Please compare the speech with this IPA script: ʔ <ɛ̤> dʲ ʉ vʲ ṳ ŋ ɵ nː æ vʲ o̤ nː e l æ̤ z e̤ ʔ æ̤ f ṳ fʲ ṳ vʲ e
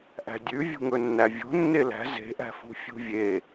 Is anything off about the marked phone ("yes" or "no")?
yes